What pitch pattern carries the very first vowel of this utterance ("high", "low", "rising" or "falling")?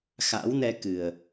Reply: rising